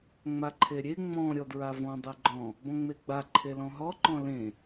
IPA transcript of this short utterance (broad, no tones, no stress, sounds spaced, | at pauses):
ŋ͡m a ǃʰ e ɾʲ e ŋ͡m ɔ̃ ɾʲ ɔ d ɹ a v ɔ̃ dˤ e ɡ͡ǃ ɔ̃ | b ɔ̃ ŋ͡m e ɡ͡b a ǃʰ e l ɔ̃ ɦ ɔ ǃ ɔ̃ l ẽ